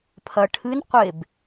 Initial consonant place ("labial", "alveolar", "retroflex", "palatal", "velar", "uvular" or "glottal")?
labial